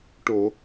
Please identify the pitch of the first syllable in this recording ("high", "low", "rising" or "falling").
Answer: low